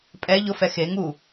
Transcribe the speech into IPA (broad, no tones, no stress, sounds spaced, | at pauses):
pʼ ɛ ʎ ʊ f ɛ x e ŋ u